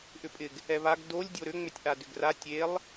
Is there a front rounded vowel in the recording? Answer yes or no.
yes